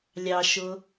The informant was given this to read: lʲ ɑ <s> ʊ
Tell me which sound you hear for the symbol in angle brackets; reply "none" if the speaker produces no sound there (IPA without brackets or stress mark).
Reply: ʃ